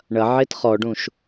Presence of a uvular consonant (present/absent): present